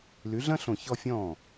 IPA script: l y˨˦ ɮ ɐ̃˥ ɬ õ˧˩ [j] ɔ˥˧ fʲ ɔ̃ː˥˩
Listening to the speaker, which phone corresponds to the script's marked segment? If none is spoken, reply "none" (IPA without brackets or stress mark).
ç